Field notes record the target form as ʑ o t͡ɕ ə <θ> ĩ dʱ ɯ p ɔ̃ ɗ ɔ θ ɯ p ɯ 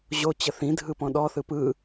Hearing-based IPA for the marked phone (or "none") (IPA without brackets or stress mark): θ